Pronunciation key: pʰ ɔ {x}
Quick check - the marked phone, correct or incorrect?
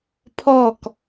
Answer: incorrect